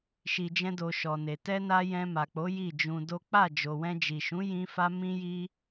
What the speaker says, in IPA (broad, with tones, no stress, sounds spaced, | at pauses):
ʃ i˧ d͡ʒ ɛ̃˦ d o˧ ʃ ɔ˨ n e˨ t ɛ˧ n a˧ j ɛ̃˧ m a˨ k͡p o˨˦ j i˦˨ d͡ʒ ũ˧ d o˦ k͡p a˦˨ d͡ʒ o˨ w ɛ̃˧ d͡ʒ i˨ ʃ ũ˨˦ j ĩ˧ f a˧ m ĩ˦ j i˦